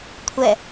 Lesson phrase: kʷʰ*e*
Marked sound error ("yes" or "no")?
yes